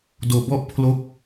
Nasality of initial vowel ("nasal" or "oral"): oral